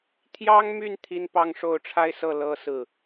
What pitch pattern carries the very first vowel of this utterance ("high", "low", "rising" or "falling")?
high